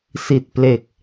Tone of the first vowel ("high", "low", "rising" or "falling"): low